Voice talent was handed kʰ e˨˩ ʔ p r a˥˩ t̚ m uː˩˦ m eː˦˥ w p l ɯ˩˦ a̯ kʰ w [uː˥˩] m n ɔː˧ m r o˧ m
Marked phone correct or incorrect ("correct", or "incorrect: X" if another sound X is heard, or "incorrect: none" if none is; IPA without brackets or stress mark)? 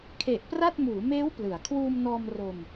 incorrect: uː˧